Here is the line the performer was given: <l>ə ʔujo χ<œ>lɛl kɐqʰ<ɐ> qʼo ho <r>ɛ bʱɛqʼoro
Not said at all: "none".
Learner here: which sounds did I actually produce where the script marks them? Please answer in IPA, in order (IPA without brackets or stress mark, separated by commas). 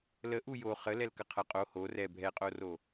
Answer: l, ə, ɐ, r